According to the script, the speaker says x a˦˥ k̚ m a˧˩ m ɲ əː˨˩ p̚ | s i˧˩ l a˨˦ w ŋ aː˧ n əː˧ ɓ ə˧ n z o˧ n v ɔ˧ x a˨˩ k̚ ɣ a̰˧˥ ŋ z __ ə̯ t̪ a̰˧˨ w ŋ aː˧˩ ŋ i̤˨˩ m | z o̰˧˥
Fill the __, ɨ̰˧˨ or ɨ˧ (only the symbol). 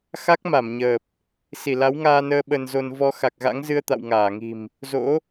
ɨ˧